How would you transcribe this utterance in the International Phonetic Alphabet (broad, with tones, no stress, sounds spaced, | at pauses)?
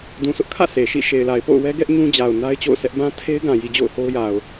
d ũ˨ s ʊ˦ ʔ kʰ ä̰˦˨ s e˨ ʃ ḭ˦˨ ʃ e˨ ɪ̯ l a˨ ɪ̯ p o̰˦˨ ʊ̯ w ɛ˦ ɡ ɛ˦ ʔ ɲ ũ˦ d͡ʑ a˨ ʊ̯ n a˦ ɪ̯ t͡ɕ o̰˦˨ ʊ̯ s ɛ˦ ʔ b ã˦ tʰ e˦ ɪ̯ ɡ ã˨ j i˨ d͡ʑ o̰˦˨ ʊ̯ h o˦ ʊ̯ j a˨ ʊ̯